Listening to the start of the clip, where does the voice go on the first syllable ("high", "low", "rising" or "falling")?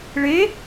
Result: rising